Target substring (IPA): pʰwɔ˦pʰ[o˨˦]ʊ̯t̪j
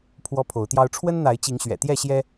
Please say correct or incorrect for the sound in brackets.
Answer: correct